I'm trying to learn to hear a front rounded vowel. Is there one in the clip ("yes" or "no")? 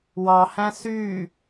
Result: yes